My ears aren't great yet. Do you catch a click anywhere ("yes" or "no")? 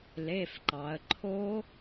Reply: yes